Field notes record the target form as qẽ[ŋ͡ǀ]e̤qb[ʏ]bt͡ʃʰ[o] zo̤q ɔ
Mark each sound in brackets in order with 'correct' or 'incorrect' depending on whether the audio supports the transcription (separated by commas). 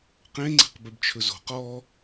correct, correct, incorrect